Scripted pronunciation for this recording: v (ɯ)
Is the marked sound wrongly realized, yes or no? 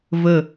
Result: yes